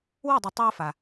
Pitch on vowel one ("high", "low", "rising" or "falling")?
falling